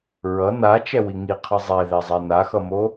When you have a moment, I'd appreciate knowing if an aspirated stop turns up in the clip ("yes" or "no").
yes